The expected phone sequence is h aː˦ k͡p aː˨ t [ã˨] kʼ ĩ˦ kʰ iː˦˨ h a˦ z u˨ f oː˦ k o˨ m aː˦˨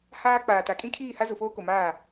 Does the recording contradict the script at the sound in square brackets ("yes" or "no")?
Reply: yes